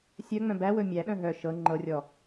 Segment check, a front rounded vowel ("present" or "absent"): present